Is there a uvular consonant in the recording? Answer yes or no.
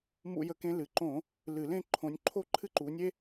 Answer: no